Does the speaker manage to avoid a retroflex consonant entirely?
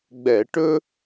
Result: no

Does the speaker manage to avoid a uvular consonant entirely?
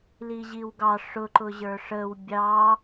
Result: yes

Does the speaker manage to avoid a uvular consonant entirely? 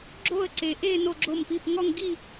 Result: yes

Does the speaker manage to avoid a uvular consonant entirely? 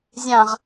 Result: no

